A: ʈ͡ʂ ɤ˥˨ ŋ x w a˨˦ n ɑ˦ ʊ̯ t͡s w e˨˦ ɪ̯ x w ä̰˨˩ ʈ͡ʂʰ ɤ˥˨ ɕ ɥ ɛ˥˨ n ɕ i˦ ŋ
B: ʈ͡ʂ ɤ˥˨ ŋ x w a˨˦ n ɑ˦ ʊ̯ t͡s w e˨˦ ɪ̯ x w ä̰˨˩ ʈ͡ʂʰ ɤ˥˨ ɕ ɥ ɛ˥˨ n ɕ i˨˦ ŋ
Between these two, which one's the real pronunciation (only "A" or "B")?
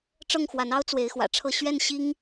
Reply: A